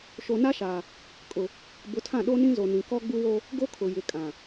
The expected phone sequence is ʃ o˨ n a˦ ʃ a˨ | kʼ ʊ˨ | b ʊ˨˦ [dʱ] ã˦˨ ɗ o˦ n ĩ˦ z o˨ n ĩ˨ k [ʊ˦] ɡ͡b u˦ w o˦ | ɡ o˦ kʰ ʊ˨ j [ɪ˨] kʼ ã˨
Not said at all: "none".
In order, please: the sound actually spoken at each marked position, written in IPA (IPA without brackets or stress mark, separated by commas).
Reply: tʰ, ɔ˦, ɪ˨